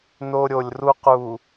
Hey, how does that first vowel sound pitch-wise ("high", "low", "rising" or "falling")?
high